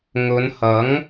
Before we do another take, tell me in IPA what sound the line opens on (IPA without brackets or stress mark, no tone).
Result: ŋ